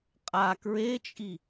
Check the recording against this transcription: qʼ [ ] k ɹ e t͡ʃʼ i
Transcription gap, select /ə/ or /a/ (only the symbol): a